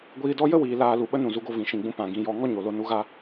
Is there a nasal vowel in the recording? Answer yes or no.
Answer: yes